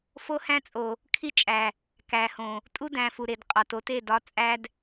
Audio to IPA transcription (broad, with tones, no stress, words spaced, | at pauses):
fo˦hæ̃˦ t͡sʼo˨ | kʰi˦t͡ʃʼæ˨ | kæ˨hõ˨ | tʼu˦dæ̃˨fu˨ɾe˨d qʼɒ˨to˦te˦˨dɒ˨˦ t͡sʼæ˧d